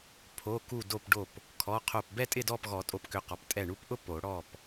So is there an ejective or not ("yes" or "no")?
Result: yes